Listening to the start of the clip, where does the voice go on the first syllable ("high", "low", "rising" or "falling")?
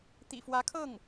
low